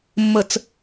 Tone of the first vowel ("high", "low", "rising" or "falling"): low